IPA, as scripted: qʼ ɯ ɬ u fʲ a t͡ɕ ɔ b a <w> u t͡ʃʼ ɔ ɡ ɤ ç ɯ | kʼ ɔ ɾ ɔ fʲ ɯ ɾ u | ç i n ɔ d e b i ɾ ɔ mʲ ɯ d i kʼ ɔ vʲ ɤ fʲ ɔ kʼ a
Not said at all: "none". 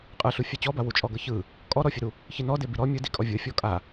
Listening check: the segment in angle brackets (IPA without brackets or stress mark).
w